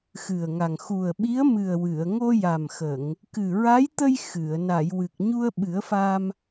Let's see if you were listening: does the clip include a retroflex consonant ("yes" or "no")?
no